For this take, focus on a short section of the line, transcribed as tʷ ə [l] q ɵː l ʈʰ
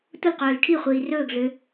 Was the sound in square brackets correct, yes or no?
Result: yes